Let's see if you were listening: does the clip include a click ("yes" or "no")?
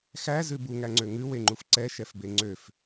yes